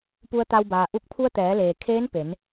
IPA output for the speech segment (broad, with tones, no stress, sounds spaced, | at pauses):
p u˧ ə̯ t̪ a˧ w b aː˩ ʔ u˧ k̚ pʰ u˧ ə̯ t̪ ɛː˩˧ l eː˩ kʰ eː˧˥ n p e˩˧ n